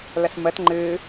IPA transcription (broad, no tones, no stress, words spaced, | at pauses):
ləsmət ŋ͡ǃɨ